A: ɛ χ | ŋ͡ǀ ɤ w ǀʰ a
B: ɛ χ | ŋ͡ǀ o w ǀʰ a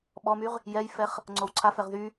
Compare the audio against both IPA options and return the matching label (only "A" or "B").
B